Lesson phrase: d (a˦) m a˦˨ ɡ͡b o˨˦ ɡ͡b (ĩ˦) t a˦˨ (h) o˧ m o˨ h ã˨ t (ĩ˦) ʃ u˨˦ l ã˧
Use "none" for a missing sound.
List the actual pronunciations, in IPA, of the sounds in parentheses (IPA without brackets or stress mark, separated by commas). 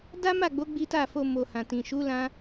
a˦, i˦, f, ĩ˨